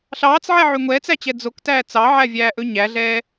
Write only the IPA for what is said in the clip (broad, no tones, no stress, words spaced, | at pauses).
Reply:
ɬɑːt͡sʕɛʕy ŋʷɛːt͡sæt͡ɕɛ d͡zoktæː t͡sɑʕævʲæːʔɵ ɲæɮɛː